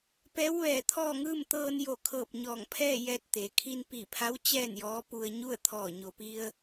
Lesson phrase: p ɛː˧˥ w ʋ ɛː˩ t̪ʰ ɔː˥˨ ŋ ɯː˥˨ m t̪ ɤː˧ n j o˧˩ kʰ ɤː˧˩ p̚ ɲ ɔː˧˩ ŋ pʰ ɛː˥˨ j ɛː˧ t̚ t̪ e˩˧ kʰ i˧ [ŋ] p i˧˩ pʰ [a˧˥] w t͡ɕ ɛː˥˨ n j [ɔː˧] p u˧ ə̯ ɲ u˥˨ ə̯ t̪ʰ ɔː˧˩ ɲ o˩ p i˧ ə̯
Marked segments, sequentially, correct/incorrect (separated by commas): incorrect, correct, incorrect